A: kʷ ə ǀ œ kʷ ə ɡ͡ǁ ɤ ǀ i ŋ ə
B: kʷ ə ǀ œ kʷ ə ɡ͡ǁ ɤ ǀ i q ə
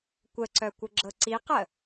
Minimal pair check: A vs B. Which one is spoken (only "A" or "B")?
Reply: B